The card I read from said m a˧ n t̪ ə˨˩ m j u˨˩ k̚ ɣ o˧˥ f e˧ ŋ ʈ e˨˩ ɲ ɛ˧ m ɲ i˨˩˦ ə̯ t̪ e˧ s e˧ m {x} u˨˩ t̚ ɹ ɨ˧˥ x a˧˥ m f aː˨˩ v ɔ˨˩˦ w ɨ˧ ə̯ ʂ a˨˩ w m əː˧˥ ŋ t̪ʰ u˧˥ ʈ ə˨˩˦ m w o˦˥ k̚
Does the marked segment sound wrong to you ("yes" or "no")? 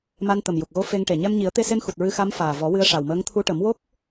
no